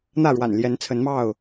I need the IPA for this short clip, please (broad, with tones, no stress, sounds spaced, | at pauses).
n̪ ä˥˨ ɻ w a̰˨˩ n l j ɛ˨˦ n t͡sʰ ə˨˦ n m ɑ˥˨ ʊ̯